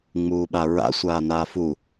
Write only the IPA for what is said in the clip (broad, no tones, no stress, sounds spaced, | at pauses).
ŋ͡m uː ɓ a ɹ a̰ sʷ aː n aː f u